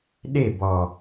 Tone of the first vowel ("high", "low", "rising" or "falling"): falling